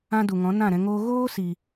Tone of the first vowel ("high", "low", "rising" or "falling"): high